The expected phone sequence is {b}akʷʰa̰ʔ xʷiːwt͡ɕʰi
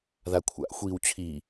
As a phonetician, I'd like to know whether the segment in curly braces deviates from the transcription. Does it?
yes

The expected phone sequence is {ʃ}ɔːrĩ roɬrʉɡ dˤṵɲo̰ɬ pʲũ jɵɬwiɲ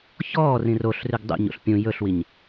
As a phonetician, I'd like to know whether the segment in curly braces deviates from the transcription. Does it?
yes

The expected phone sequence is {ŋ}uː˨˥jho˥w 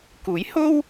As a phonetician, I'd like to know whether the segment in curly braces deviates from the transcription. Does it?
yes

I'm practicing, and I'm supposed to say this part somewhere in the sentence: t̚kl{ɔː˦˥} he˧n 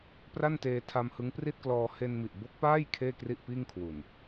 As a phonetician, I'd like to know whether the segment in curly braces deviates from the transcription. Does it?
yes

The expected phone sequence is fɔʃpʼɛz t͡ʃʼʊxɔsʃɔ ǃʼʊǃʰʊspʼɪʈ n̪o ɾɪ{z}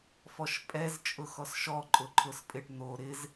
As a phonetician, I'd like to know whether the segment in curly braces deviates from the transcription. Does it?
no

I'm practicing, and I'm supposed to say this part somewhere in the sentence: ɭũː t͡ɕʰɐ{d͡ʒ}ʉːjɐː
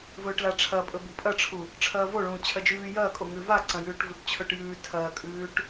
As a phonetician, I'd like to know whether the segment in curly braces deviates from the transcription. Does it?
no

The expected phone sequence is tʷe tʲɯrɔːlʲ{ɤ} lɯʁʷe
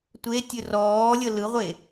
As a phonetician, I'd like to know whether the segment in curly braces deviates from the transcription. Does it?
no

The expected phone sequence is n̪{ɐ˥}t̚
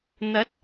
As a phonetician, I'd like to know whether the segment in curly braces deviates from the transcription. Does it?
yes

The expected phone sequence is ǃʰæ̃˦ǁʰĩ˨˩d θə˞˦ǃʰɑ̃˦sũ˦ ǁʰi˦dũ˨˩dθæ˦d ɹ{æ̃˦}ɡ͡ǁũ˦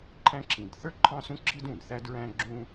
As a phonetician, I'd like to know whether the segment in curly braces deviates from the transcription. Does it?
no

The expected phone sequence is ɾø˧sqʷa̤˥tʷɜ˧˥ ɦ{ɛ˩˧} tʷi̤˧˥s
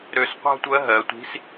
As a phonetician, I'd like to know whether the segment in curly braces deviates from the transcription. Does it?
yes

